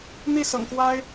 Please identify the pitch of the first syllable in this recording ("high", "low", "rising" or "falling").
falling